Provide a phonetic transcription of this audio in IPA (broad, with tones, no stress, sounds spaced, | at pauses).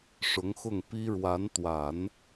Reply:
ʂ ʊ˧˥ ŋ x ʊ˥˩ ŋ p i˥ ɻ w a˧˥ n t̪ w a˨˩˦ n